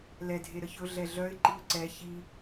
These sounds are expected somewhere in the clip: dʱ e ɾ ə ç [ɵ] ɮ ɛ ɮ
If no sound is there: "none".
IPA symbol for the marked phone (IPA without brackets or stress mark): ɵ